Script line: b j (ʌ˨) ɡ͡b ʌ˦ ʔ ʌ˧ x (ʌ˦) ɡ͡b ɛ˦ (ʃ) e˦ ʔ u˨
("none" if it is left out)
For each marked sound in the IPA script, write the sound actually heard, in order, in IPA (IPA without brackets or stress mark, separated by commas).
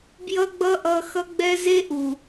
ʌ˦, ʌ˦, z